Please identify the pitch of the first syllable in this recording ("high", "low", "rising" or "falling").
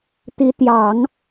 rising